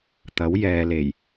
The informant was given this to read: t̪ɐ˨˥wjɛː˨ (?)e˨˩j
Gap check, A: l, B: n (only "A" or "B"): A